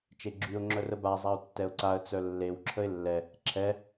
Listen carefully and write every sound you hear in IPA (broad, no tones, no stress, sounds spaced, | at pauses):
t͡ʃ e ɡ͡ǁ y ʊ̯ ŋ͡ǁ œ r ə b a zˤ a ʊ̯ tː ɛ ʊ̯ ǀ a ə̯ t͡s œ lː e w ǁʰ ə ɪ̯ lː ɛ | ǁʰ ɛ